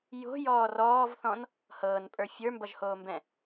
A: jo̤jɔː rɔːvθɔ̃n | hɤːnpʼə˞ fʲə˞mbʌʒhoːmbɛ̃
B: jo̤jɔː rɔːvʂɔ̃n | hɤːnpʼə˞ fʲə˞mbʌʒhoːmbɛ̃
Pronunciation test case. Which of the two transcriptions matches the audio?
A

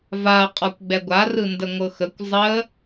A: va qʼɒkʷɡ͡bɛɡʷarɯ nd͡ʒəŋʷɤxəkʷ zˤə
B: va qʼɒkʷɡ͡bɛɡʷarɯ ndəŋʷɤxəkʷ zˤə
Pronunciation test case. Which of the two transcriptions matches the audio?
B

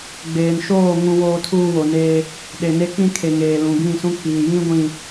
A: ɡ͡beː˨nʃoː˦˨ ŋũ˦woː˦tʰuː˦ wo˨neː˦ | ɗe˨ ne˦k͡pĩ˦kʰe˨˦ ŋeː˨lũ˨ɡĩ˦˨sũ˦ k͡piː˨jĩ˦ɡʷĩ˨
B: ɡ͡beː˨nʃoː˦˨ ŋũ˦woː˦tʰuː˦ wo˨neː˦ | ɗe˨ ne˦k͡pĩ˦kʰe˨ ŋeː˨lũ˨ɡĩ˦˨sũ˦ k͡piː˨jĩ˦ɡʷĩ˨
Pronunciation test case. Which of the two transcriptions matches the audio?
B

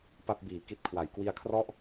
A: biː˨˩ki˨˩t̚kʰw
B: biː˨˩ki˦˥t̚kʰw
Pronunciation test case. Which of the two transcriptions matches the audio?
B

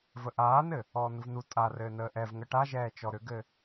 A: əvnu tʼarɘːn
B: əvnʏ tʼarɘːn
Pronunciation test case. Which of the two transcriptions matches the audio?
A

